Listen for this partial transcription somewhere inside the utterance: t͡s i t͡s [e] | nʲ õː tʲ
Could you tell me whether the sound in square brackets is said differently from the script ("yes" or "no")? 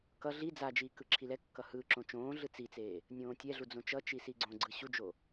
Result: yes